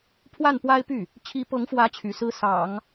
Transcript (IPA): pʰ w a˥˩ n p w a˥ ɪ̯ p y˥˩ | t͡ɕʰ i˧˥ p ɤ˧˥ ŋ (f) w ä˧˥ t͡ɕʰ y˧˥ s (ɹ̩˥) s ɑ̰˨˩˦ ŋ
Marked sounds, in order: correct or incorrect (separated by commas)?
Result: correct, correct